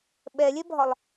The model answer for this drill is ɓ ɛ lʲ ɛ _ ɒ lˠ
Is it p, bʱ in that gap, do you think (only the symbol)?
bʱ